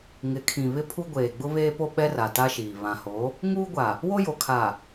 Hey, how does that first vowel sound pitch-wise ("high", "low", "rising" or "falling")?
rising